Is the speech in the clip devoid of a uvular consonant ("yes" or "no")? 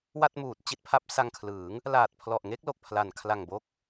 yes